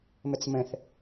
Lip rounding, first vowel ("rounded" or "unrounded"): unrounded